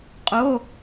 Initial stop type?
ejective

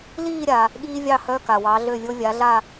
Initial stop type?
implosive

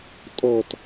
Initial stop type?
ejective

